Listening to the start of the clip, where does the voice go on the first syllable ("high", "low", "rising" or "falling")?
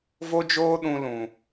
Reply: high